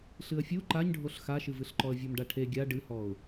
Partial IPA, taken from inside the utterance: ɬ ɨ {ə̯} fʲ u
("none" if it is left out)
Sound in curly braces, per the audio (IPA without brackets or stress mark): ə̯